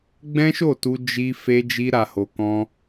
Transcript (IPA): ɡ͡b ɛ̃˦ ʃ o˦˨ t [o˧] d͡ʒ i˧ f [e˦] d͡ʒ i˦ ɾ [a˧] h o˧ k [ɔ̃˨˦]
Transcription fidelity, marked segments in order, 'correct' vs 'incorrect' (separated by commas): incorrect, correct, correct, incorrect